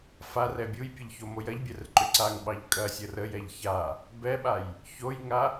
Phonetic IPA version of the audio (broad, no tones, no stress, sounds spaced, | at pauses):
f a r ɛ bʲ u j pʲ ə ʎ ç o m o j ɐ ʎ bʲ ɛ r ǃ ʏ ǀ a ŋ ɓ ɑ ʎ kʼ ɐ sʲ ə r ə j ɛ ʎ ç a | b ɛ ɓ a j | ç o j ŋ a